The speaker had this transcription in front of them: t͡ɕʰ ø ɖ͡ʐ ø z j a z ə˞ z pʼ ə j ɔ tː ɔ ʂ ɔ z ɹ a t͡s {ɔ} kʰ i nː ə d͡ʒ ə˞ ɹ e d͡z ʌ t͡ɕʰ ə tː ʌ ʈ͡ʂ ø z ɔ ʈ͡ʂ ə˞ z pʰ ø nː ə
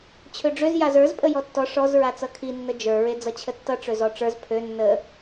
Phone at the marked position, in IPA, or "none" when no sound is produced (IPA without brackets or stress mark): ʌ